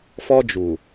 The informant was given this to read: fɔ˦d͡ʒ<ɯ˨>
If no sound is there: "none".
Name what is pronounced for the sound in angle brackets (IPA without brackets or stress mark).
u˨